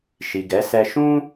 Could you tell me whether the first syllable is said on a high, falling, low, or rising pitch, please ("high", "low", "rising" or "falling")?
low